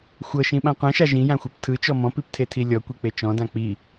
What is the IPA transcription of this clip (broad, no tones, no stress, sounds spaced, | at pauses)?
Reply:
xʷ ɤ ʃ ĩ ɓ ã qʷ ɛ̃ ʃ a ʒ ĩ j ã xʷ ɤ p tʰ ɯ t͡ʃ ɔ m ɔ̃ p i p tʰ e tʰ i lʲ ɔ kʷ i k͡p e t͡ʃ ɔ̃ d ã k͡p i